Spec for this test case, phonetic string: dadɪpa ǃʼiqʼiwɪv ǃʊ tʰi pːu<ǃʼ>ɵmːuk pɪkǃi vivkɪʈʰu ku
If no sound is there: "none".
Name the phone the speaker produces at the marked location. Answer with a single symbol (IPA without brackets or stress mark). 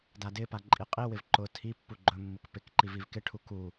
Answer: ɡ͡ǃ